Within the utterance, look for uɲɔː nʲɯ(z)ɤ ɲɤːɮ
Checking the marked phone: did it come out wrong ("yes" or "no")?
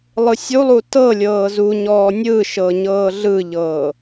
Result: yes